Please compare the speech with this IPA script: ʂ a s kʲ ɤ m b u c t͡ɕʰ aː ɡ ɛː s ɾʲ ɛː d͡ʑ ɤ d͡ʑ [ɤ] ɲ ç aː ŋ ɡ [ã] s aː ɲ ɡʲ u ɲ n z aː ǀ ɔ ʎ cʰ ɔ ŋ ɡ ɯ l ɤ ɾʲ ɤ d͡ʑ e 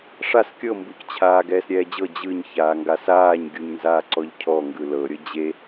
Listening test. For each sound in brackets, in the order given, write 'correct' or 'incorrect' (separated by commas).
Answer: incorrect, incorrect